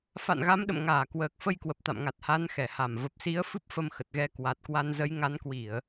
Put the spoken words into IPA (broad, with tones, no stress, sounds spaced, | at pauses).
f a̰˧˨ n ɣ a˨˦ m ɗ ə̰˧˨ m ŋ aː˧˩ k w əː˨˩ k̚ f ə˧ j k w ə˨˩ p̚ t̪ a̰˧˨ m ŋ a˨˩ t̚ h a˨˦ n x ɛ˧˩ h a˧˩ m v ə˨˩ p̚ s i˨˦ ə̯ f ɨ˦˥ p̚ f ə˧ m x ə˨˩ t̚ ɣ ɛ˧ k w a˨˩ t̚ k w a˧ n z ə˨˦ j ŋ a˨˦ n k w i˧˩˨ ə̯